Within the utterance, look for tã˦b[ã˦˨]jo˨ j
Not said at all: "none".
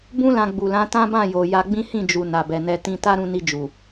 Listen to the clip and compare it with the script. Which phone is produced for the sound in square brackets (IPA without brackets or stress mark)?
ã˦˨